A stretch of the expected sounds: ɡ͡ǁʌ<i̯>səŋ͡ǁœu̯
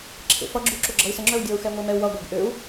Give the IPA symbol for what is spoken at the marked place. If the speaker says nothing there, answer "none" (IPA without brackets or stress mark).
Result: i̯